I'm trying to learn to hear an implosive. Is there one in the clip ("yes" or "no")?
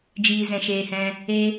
no